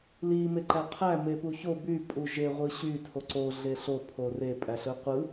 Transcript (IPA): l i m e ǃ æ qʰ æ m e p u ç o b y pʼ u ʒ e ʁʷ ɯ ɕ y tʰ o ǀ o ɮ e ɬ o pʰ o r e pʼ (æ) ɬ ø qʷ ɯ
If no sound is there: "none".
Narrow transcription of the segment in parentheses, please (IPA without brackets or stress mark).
æ